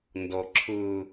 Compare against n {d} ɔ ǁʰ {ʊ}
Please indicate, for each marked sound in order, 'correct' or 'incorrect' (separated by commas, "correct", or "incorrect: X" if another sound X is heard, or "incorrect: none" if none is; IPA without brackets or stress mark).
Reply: correct, correct